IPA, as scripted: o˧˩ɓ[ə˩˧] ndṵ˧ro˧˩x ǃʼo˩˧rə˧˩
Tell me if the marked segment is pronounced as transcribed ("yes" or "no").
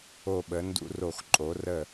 yes